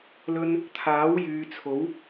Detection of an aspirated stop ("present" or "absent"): present